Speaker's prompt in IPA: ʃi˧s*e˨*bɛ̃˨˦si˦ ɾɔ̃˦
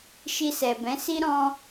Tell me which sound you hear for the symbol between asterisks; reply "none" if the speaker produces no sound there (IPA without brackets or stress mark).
ɛ˨